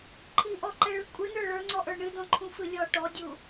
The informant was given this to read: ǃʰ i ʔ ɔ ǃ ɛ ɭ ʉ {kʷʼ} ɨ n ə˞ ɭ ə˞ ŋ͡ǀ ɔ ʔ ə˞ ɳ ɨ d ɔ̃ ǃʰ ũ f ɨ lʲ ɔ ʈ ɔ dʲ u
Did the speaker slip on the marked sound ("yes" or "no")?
no